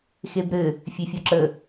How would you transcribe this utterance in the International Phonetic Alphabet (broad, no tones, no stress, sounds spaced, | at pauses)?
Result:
x e b ɾ ɘ | fʲ e fʲ o ǁ ə